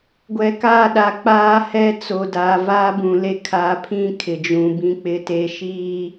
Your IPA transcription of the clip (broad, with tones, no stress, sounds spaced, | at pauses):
ɡʷ ɛ˨ k aː˦˨ ɗ a˨ k͡p aː˦ h ɛ˦ t͡s o˨ d aː˨ v aː˦ b ũ˨ l e˦ kʰ a˨ pʰ ĩ˦ kʰ ɪ˨ d͡ʒ ũ˨ b ĩ˦ k͡p ɪ˦ t e˦ ʃ iː˦